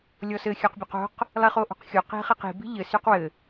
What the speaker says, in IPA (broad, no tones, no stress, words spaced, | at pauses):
lʲɔsɘ xʲœqbʲœqo̤q | lˠiχoʔo̤qxʲo qi̤χiqi̤ bi̤ʎɘ syqwɘ